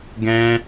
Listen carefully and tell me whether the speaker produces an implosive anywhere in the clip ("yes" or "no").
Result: no